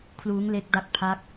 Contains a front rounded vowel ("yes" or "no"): no